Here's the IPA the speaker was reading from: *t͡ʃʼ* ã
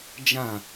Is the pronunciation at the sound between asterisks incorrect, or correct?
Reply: incorrect